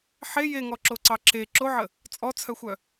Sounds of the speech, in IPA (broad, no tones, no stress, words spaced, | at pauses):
ħe jeŋɔǁoǀɑ ǁe ǁoʕə | t͡sʼɔt͡sʰœxʷœ